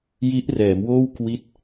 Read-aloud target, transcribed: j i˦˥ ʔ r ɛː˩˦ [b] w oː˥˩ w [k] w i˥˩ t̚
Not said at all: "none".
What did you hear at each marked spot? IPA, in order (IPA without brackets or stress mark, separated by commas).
m, k